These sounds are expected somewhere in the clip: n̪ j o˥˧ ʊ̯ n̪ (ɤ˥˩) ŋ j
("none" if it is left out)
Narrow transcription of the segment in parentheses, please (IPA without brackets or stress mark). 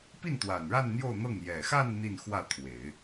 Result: ɤ˥˩